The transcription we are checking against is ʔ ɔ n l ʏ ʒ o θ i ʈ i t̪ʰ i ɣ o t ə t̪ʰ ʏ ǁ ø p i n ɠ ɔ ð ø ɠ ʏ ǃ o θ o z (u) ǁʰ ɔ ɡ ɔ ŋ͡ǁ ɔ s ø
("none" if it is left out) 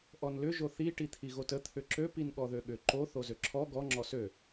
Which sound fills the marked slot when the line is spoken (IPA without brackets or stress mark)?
ø